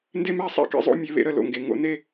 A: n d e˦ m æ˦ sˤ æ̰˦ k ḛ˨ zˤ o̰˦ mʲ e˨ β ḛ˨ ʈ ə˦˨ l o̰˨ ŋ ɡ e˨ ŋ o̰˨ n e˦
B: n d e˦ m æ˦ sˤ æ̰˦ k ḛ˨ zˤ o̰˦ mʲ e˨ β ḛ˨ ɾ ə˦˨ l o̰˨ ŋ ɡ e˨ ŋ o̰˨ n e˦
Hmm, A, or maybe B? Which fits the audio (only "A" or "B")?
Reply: B